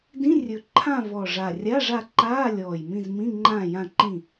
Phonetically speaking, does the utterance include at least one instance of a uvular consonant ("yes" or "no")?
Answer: no